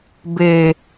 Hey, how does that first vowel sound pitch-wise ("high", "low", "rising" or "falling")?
high